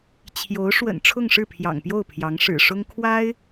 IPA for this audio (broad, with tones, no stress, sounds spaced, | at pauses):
t͡ɕʰ j o˧˥ ʊ̯ ʂ w ə̰˨˩ n ʈ͡ʂʰ ʊ˥˧ ŋ ʂ ɻ̩˥˩ pʰ j ɑ̰˨˩ ŋ p j o˥˩ ʊ̯ pʰ j ɑ˧˥ ŋ ʂ ɻ̩˨˩ ʂ ʊ˥ ŋ kʰ w a˥ ɪ̯